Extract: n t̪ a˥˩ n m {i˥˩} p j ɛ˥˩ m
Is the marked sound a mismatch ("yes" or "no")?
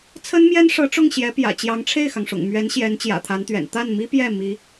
yes